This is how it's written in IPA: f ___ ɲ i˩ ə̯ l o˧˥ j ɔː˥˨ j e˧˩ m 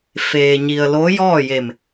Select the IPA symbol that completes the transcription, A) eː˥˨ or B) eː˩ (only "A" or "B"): B